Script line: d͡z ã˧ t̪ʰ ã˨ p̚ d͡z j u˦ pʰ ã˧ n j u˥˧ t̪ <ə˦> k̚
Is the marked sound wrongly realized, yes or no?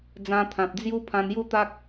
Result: yes